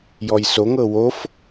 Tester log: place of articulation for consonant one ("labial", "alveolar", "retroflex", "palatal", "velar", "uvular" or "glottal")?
palatal